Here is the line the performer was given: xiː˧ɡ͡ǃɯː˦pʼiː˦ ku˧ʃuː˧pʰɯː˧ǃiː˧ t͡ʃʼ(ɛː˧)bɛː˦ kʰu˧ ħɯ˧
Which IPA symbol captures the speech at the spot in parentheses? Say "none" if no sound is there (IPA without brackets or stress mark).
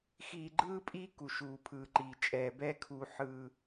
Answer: ɛː˧